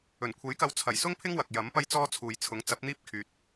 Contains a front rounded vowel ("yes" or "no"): yes